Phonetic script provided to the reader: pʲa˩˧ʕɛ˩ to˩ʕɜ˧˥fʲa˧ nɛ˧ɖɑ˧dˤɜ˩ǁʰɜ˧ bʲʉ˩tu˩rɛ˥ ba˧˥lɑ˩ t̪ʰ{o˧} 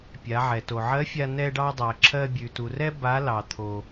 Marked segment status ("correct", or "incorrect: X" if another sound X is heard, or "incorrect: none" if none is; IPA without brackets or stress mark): incorrect: o˩